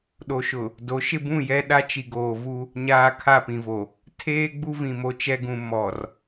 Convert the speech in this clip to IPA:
ɗ o˨ ʃ ʊ˨ | d o˨˦ ʃ ɪ˦ b ũ˦˨ j ɛ˦ ɗ a˦ t͡ʃ i˨ ɡ oː˨ v u˦ | ɲ aː˦ kʰ a˦˨ p ĩ˨ v o˨ | tʰ eː˦ ɡ͡b u˦ v ĩ˨ m o˨ t͡ʃ ɛ˦ ɡ ũ˨ m ɔ˨ r

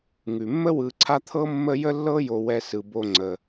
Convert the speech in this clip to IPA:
ŋ ʉ˩ mː ə˥ w ɯ˨ ǀʰ a˦ t̪ʰ ɤ˥ mː ə˦ j ə˥ lː ɤ˥ j o˨ w ɛ˨ s ɯ˩ b o˨ ŋ͡ǀ ə˩

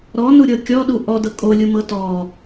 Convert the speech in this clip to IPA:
ɾ ɔ n u ɾʲ ɤ kʲ ɔ ɗ u ʔ ɔ d ɤ kʼ o lʲ u m ɤ t ɔ

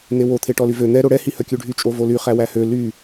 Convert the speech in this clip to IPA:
n̪ e w o t̪ʰ e ʈ ɔ l y v ø n̪ ɛ ɾ o ɽ ɛ h i h œ kʲ ʉ ɖʱ y t͡ʃʼ o v o l y χ æ w æ h ø l y

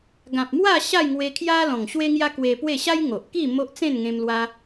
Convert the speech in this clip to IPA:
ɡ ã˨ p̚ m w a˥˧ ɕ a˥˧ j ŋ w e˧ kʰ j a˦ l ɔ̃˨˩ ŋ ɕ w e˦ ŋ j a˦ k w e˧ p w e˥˧ ɕ a˦ j ŋ o˨ ʔ k i˥˧ m o˦ ʔ t͡s ẽ˥˧ n ŋ ẽ˧ m l w a˦

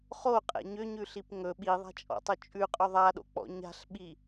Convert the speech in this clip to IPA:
χ o qʼ ɛ̰ ɲ ʏ ɲ ʉ ɬ i p ŋ ɵ ɓ i ðˤ a̤ t͡ʃʼ ɔ̰ tˤ ɵ t͡ʃʼ ʉ qʼ ɵ ðˤ a ɗ o̰ k͡p ɔ̰ ɲ a̤ ɬ ɓ i

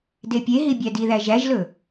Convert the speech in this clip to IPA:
d e pʲ e ɦ i bʲ æ d i ð æ ʒ æ ʒ l ɵ

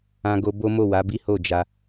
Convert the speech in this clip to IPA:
ã˧ ɡ o˧ b o˦ m o˦˨ w a˨˦ b i˦ h o˦˨ d͡ʒ a˧

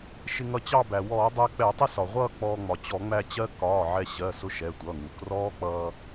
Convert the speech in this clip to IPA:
ʃ ɪ˧ ŋ ʌ˧ t͡ɕ ɑ˥˧ b æ˩ w ɔː˧˩˧ dˤ æ˧ k͡p ɛ˧˩˧ tˤ ɪ˥˧ s ɒ˩ ʁʷ ʌː˥˧ k͡p ɔː˧ ŋ͡m ɒ˩ t͡ɕ ɔ˧˩˧ ŋ͡m æ˧ t͡ɕ ɜ˦˥ k ɒː˩˧˩ ʕ ɛ˧ ɕ ɜ˩˧˩ s ʊ˧ ʃ ɛ˩˧˩ tʷ ʌː˩˧˩ ŋ u˩ k r ɔː˦˥ k͡p ʌː˧

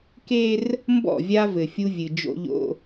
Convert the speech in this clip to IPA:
k e˦ r | m b ɔ̰˦˨ vʲ a˦ v ɘ˨ fʲ u˦ vʲ ɨ˨ d͡ʒ o̰˦ ʎ o̰˦

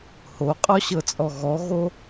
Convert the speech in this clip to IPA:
h o qʼ ɔ ɕ ɤ t͡sʼ ɔ ɣ ɔ ɣ o

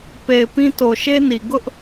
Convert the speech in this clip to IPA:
p e˨ ɪ̯ p ĩ˦ t o˨ ʃ e˦ n i˨ ɡ ʊ˦ ʔ

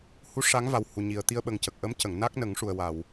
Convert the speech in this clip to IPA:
h u˧˥ ʂ a˧˥ ŋ v a˨˩ w h u˨˩ ɲ i˨˩ ə̯ t̪ i˧ ə̯ ɓ ə˨˩ ŋ c ə˨˩ k̚ ʔ ə˧˥ m c ə˨˩˨ ŋ n a˦˥ k̚ n ə˨˩˦ ŋ ʂ u˨˩ ə̯ w a˨˩˨ w

